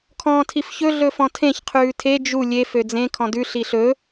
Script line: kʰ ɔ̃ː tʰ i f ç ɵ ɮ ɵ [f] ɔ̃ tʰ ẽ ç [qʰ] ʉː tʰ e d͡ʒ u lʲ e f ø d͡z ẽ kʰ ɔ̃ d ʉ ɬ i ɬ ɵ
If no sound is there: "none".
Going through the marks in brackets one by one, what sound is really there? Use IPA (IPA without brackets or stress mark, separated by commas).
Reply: f, qʰ